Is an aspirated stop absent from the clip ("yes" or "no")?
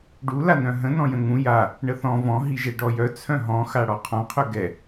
no